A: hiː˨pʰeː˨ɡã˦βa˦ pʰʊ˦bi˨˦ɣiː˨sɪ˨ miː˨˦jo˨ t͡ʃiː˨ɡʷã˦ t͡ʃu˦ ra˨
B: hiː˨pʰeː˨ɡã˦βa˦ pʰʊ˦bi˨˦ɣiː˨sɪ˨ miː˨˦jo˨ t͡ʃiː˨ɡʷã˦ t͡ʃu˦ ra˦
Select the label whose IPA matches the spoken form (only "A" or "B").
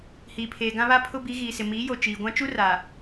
A